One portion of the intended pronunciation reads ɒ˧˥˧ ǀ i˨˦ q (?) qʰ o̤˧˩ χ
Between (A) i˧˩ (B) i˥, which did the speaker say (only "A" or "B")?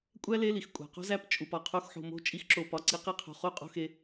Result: B